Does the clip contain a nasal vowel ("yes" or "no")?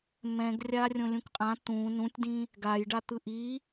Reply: yes